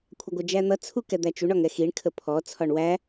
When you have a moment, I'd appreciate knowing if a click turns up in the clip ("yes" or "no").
no